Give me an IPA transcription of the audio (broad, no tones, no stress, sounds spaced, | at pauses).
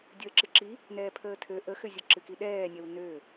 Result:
dʲ əː ǁ ɨ ǁ i | n ɛː pʰ əː tʰ ø ʔ ə x ʏ zʲ ə ǁ ɨ k i ɗ ɛː nʲ ɛ w n ø